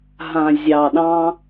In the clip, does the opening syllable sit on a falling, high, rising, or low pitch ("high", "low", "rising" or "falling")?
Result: low